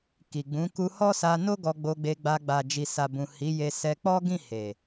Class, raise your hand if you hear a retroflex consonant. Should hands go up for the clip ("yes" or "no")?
no